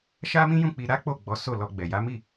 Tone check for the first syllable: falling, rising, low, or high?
high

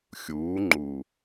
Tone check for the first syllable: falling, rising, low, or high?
rising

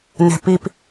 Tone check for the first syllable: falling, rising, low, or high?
low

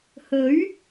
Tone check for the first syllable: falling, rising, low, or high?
rising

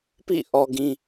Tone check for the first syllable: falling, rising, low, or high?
falling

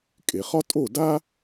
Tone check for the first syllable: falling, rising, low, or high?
low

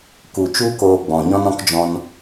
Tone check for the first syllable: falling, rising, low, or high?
low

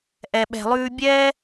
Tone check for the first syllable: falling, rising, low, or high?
low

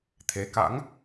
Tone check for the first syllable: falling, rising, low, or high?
rising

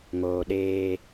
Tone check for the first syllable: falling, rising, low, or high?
low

